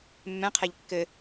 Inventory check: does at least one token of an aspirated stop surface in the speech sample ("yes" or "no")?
yes